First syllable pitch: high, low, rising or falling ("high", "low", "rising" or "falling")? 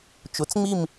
rising